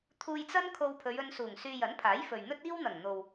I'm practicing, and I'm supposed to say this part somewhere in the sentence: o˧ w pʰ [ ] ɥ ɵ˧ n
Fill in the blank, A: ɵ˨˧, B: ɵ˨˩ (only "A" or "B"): A